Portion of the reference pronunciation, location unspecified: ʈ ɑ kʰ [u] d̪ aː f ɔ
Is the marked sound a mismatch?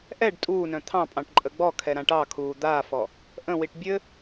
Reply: yes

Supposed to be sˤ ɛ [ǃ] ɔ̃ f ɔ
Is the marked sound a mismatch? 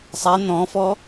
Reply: yes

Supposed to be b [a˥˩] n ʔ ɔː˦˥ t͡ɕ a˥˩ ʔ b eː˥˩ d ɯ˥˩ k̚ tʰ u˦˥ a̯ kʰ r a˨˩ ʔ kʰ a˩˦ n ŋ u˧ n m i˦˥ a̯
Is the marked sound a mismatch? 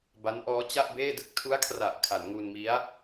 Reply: yes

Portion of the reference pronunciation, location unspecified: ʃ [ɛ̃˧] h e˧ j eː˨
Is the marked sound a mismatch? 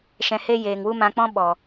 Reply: yes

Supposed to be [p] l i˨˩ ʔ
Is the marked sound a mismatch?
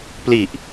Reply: no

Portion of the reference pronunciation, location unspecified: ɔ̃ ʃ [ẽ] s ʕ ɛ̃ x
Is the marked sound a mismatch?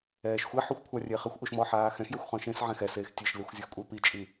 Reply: no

